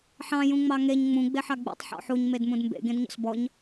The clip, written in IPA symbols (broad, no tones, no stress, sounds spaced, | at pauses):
ħ ɑ̃ j ũ ŋ͡m ɑ ŋ e ɲ ŋ͡m ũ ɡ͡b e ħ ɑ ɡ͡b ṵ tˤ ħ ɔ̰ ħ u ɲ m e d m ũ d m b ḛ ɡ ẽ d ɲ ɔ̰ s b ɔ ɲ